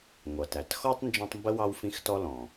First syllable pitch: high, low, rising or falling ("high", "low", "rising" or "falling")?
low